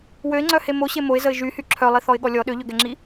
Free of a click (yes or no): no